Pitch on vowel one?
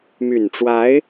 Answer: low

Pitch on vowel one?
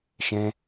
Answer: high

